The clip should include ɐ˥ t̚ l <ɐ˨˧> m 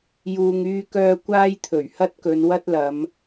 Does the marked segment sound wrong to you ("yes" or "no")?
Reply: no